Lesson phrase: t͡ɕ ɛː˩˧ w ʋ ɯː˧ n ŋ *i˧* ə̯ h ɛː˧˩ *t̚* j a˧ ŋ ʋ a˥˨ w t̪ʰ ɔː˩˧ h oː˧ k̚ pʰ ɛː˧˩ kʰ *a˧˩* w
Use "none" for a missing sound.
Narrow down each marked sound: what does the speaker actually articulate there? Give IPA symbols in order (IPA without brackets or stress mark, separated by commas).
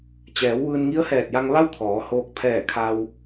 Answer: i˧˥, t̚, a˧